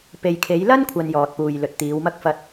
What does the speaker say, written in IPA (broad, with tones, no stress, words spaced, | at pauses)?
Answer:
pe˨jkʰe˨˧jlɐ˥n kʷʰɐ˧njɔː˨t̚ puː˨j lɵ˨t̚t̪iː˨˧wmɐ˥k̚ fɐ˥t̚